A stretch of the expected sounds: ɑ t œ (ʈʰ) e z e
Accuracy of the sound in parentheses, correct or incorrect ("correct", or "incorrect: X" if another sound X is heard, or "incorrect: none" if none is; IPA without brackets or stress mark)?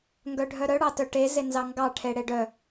incorrect: ʈ